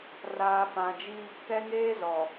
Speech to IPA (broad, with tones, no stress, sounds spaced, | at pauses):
r aː˨ f ã˨ d͡ʒ i˦ | k ɛ˦ ŋ eː˦ z ɔ˨